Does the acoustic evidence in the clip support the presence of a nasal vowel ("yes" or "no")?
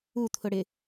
no